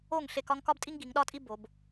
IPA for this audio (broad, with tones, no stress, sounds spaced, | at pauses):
o˥˨ ŋ ɬ e˥˨ k ɒ˥ ŋ k ɒ˥ b tʼ i˥ ŋ ɡ i˩˧ ŋ ɗ ɒ˥ tʼ i˥ b o˩˧ b